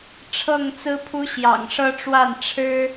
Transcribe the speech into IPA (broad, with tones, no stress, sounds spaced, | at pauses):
ʈ͡ʂʰ ɤ˥˨ ŋ t͡s ɹ̩˦ pʰ u˦ ɕ j ɑ̰˨˩ ŋ ʂ ɤ˦ ʈ͡ʂ w a˥˨ n ʈ͡ʂʰ ɻ̩˦